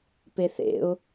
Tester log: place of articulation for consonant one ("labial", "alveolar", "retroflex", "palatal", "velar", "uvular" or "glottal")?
labial